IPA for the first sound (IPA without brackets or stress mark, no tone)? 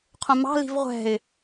qʰ